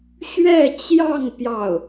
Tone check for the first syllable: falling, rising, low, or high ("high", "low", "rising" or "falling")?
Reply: falling